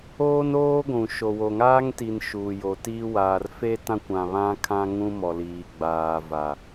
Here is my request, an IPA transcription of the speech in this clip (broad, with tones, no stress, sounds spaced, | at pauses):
oː˦ n oː˦ ɡʷ ũ˨ ʃ o˨ w o˨ ŋ aː˦ ŋ t i˨ n ʃ u˨ j o˨ t iː˦ w aː˨ r f e˦ t ã˦ kʷ ã˦ β ã˦ kʰ ã˦ ŋ ũ˦ m ɔ˨ l iː˨ ɡ͡b aː˨ v a˨